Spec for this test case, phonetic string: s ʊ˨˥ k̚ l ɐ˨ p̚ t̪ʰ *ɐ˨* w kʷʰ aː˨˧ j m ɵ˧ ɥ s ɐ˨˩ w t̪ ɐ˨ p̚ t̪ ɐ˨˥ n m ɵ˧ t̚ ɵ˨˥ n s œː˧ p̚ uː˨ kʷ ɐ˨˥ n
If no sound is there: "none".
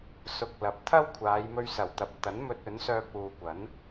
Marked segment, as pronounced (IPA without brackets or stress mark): ɐ˥